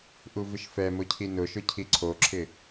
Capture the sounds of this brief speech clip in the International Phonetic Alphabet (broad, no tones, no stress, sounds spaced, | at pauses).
ʔ u v ɪ ʃ f ɛ m ʊ cʰ i n ʊ ʃ ʊ cʰ i ǀʰ o ǁʰ ɪ